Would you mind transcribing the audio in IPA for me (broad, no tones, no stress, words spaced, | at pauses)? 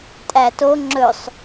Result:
tʼæto ŋ͡ǁɵsˤ